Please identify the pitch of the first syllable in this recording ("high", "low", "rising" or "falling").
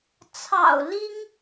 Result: low